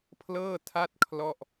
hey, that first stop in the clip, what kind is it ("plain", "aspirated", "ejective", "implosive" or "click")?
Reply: aspirated